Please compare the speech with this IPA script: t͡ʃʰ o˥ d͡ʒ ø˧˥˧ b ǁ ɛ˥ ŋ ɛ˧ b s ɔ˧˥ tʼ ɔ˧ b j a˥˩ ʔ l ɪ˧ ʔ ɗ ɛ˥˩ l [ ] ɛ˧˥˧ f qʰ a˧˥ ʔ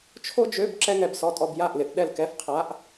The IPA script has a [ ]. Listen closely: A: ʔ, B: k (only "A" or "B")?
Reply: B